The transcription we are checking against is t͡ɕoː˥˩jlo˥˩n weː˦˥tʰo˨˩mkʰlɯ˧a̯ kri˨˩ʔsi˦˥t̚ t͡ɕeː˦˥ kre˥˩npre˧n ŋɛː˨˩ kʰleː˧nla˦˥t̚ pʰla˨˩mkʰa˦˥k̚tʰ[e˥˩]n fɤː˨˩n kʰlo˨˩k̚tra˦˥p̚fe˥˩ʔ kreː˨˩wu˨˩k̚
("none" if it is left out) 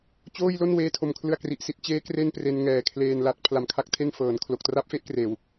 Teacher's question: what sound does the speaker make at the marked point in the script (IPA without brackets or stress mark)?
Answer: e˥˩